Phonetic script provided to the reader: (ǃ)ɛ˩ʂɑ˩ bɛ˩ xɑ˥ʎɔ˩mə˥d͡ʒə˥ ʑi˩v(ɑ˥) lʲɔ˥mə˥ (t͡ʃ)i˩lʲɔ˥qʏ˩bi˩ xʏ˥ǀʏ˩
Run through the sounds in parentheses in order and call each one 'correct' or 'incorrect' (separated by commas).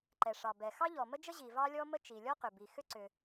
correct, correct, correct